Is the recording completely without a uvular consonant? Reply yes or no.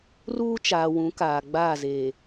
yes